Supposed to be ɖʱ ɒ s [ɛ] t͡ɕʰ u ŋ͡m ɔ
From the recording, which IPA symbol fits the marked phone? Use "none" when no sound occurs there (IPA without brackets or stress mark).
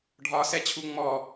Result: ɛ